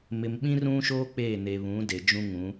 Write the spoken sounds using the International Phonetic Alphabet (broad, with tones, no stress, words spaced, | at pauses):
mɪ˨mɓĩ˦rũ˦ʃoː˦ k͡peː˦˨ne˨βũ˨˦de˨ d͡ʒũ˦ŋũ˨˦